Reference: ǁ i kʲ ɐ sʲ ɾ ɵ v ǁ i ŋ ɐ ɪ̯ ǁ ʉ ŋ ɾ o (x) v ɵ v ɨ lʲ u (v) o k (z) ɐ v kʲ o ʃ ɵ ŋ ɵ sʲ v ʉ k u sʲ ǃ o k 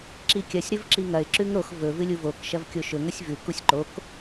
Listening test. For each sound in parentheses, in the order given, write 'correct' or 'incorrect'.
correct, correct, incorrect: ʃ

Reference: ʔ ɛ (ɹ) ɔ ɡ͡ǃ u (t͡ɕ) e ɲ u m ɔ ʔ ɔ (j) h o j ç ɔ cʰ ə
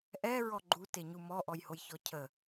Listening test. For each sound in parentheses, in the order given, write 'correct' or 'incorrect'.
correct, incorrect: t, correct

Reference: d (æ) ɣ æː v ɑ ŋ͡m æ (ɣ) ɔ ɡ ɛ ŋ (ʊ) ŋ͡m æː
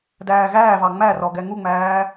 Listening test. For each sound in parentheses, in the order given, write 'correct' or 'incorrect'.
incorrect: æː, incorrect: r, incorrect: u

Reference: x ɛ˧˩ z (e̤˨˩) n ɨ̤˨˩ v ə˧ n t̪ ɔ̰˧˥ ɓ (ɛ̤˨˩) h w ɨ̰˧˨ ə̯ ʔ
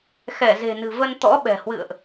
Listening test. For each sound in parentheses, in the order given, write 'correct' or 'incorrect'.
correct, correct

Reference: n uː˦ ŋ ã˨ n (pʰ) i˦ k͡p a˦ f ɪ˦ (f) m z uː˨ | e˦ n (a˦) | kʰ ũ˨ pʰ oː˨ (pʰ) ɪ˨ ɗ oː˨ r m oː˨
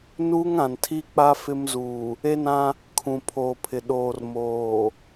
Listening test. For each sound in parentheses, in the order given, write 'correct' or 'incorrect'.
incorrect: tʰ, incorrect: none, incorrect: ã˦, correct

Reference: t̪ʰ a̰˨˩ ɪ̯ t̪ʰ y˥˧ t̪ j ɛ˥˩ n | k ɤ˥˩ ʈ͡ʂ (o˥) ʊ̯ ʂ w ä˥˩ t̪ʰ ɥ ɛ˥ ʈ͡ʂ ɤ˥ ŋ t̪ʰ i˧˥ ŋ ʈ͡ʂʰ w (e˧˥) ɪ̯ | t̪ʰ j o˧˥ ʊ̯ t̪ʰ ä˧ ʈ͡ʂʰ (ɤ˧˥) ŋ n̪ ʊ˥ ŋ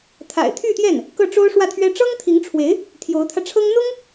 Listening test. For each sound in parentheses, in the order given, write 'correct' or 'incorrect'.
correct, correct, incorrect: ɤ˥

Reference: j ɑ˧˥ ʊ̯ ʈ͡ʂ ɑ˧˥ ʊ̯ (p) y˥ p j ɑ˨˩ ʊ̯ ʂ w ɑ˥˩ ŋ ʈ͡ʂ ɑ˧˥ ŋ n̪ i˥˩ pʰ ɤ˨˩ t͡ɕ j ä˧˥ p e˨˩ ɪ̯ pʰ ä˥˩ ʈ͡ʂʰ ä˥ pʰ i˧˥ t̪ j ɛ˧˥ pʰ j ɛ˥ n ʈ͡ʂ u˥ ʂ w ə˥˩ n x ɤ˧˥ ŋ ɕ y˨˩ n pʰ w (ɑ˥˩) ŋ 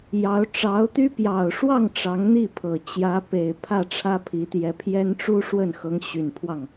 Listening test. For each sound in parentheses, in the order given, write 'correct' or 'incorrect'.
incorrect: t̪, correct

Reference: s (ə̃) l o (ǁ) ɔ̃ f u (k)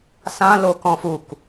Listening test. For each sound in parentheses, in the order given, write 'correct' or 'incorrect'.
incorrect: ã, incorrect: k, correct

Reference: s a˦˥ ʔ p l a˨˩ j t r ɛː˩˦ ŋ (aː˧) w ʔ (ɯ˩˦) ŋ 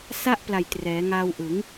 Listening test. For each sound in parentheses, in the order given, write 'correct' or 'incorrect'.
correct, correct

